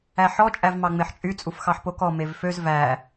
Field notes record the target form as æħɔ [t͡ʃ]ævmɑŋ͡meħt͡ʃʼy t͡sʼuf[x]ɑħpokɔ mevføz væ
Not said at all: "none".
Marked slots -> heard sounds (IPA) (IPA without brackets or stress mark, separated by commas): t͡ʃʼ, x